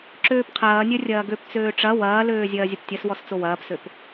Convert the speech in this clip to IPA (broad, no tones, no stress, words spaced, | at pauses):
ǁøːpqʰɐːnʲœ rʲɐːɡøp t͡søːʈ͡ʂɐ wɐːløːzʲɐːzʲəp tʲɐswɔs t͡sowɐːpsøp